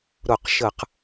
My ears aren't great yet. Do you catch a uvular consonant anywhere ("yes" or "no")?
yes